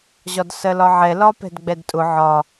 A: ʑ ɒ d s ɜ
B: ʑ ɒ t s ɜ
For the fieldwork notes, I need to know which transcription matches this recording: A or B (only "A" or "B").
A